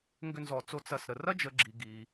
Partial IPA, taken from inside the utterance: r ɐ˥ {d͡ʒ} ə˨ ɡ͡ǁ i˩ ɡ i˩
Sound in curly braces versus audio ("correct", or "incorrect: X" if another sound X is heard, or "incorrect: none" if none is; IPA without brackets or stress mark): correct